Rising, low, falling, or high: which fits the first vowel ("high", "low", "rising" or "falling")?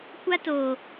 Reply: high